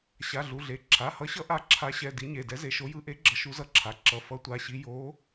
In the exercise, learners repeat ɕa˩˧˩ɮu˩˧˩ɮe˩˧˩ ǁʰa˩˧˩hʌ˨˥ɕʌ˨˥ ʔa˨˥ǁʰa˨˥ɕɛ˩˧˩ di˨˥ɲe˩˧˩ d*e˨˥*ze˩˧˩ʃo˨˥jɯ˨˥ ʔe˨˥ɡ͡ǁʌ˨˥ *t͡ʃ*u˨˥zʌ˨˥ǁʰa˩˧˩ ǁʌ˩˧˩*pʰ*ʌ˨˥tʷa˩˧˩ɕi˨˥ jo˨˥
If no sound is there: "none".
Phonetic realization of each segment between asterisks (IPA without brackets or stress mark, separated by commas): ɛ˨˥, ʃ, f